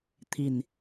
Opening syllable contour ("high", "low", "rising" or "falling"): low